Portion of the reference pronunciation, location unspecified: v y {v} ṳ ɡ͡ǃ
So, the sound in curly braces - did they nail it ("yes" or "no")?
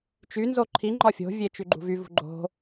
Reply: yes